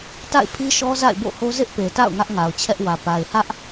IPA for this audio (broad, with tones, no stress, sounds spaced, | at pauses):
t a̰˦˨ ɪ̯ pʰ i˦ ʃ ɔ˦ z a̰˦˨ ɪ̯ b o̰˦˨ h o˦ z ɪ˦ ʔ p e˨ t a̰˦˨ ʊ̯ ŋ ä˦ ʔ ŋ a˨ ʊ̯ t͡ɕʰ ɛ˦ ʔ w ä˨ p a˨ ɪ̯ h ä˦ ʔ